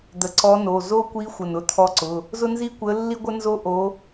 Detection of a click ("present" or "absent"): present